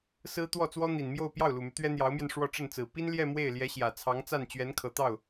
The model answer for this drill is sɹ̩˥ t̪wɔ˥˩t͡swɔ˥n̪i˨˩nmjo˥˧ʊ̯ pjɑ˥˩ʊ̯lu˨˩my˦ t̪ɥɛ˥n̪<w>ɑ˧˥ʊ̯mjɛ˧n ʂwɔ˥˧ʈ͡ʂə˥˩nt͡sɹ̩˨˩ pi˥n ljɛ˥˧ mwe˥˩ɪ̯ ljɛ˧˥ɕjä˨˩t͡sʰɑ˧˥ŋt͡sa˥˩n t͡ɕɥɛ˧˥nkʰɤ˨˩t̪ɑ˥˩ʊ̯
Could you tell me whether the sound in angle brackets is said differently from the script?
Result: yes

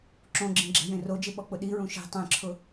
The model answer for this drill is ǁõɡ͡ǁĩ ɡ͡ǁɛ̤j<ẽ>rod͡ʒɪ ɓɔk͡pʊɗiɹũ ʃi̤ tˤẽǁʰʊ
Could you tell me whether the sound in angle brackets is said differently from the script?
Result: no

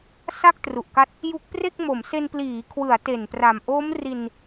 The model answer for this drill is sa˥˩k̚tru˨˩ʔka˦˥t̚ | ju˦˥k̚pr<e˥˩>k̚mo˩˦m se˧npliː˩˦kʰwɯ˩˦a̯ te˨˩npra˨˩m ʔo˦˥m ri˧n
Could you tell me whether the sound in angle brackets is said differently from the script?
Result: no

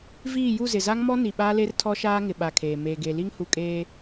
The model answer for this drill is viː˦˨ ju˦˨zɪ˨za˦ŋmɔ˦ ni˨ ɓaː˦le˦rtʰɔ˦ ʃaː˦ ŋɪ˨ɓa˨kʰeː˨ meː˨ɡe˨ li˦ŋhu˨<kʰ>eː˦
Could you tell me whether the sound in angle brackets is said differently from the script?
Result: yes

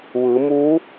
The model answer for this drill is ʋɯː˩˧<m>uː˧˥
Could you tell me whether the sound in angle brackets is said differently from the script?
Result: no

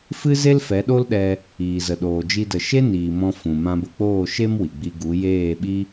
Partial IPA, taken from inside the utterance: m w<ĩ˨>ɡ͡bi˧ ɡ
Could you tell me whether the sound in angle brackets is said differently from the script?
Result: yes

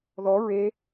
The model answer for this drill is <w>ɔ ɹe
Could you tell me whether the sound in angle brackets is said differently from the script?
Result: yes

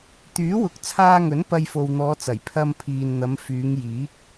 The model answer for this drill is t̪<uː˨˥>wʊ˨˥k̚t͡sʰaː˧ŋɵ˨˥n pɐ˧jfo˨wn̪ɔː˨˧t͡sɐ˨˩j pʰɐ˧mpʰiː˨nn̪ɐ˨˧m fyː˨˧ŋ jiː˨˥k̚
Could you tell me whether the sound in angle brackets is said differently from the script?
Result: yes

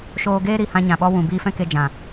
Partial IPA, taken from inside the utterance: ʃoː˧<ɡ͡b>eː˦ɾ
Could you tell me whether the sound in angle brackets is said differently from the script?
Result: yes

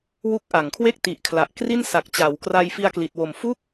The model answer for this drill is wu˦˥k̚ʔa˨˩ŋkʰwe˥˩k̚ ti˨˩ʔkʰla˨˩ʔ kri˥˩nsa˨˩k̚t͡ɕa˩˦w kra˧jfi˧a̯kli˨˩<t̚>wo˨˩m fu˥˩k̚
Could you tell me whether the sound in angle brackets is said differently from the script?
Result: no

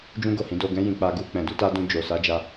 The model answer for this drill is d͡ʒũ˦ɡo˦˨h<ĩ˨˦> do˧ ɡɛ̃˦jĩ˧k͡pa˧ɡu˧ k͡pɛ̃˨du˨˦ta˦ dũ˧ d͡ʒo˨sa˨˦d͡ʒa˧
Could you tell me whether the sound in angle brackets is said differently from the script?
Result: no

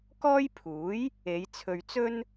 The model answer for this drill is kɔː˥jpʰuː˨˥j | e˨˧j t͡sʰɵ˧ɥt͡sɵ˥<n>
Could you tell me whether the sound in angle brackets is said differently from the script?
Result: no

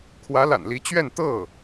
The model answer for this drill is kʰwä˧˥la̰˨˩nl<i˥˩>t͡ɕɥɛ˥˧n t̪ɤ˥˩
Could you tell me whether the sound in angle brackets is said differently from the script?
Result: yes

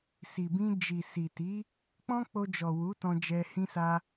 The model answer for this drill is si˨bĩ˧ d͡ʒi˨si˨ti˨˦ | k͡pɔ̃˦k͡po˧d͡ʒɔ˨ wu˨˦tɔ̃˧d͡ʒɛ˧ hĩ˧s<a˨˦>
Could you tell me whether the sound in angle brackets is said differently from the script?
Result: yes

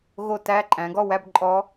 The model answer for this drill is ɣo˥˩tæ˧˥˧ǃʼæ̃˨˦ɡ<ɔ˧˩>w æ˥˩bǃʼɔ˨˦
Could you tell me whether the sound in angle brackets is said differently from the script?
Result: yes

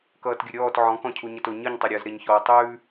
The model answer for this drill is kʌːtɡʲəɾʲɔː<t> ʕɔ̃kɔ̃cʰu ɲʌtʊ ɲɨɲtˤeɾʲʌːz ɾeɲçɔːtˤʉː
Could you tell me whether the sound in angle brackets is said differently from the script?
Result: no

